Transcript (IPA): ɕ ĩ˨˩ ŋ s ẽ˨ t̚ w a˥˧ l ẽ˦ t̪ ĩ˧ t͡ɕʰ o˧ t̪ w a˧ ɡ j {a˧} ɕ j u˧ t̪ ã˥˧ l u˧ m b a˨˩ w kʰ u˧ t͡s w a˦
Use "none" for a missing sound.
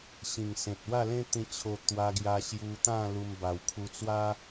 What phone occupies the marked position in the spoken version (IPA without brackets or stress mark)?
a˧